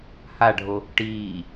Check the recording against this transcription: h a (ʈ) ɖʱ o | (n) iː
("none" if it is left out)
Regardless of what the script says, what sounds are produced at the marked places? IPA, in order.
none, ʈ

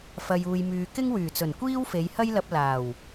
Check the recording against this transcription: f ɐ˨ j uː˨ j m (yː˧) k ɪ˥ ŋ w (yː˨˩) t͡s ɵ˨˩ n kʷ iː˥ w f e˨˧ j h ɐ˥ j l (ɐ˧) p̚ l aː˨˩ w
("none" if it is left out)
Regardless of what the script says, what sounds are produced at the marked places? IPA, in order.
yː˨, yː˨˩, ɐ˧

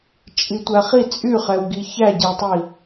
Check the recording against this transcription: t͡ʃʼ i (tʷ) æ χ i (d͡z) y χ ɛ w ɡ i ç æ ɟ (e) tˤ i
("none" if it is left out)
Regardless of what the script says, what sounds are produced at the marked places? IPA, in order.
tʷ, t͡sʼ, e

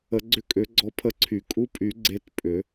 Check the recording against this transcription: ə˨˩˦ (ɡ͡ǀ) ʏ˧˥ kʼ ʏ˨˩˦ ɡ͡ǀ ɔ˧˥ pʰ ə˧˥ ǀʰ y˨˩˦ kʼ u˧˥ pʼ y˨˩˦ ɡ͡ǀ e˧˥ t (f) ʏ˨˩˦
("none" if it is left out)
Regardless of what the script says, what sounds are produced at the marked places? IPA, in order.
ɡ͡ǀ, pʼ

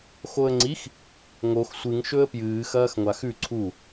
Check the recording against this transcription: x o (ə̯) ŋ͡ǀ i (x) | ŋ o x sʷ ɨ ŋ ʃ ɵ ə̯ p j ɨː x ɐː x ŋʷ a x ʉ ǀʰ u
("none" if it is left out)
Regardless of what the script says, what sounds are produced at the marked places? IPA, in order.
ə̯, x

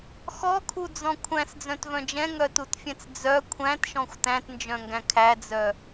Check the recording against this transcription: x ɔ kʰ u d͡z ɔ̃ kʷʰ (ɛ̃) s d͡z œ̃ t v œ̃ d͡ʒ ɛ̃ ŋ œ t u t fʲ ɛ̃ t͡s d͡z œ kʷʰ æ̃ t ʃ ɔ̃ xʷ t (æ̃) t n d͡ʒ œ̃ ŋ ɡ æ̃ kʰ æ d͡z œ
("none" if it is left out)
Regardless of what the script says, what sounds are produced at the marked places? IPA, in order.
æ̃, æ̃

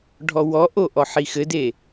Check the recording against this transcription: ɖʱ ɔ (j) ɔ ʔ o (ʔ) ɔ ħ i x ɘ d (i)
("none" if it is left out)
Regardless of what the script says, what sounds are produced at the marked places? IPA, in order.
w, ʔ, e

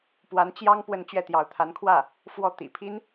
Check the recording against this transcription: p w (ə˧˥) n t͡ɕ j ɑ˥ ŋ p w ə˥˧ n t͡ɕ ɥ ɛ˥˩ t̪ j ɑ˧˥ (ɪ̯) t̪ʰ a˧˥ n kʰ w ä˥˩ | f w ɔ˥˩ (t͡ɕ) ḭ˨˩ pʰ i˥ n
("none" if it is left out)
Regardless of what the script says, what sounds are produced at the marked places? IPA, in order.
a˧˥, ʊ̯, t̪

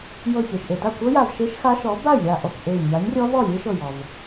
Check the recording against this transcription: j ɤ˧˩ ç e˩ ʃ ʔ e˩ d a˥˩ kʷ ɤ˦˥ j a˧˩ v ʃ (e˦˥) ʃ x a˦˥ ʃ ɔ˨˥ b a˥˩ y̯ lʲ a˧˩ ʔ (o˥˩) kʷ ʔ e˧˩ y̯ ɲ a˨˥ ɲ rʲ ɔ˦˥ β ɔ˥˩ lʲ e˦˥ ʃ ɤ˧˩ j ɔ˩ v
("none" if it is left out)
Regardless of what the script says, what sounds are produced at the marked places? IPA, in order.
e˦˥, ɔ˥˩

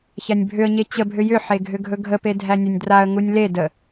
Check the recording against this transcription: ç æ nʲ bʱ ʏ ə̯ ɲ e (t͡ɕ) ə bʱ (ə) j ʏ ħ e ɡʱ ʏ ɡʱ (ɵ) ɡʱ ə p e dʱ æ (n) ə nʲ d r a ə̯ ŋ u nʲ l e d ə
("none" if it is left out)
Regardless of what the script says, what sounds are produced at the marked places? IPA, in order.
t͡ɕ, ʏ, ɵ, nʲ

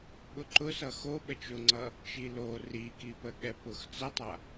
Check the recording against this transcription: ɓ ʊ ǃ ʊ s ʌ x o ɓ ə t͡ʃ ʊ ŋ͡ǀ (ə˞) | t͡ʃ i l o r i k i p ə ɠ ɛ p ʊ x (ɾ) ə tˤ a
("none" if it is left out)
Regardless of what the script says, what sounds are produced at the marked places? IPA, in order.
ʌ, t͡s

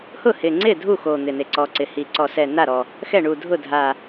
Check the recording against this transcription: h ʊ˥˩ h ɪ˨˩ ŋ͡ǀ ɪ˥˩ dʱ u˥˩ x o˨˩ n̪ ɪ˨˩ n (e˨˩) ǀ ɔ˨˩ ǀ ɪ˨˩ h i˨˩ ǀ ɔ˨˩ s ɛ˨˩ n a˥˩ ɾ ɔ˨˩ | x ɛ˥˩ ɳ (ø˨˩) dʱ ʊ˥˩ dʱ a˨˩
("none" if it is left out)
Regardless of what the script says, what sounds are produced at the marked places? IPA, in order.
e˨˩, u˨˩

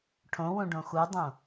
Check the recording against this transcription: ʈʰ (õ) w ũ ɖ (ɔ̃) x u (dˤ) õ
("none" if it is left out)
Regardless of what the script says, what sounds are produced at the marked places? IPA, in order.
õ, õ, dˤ

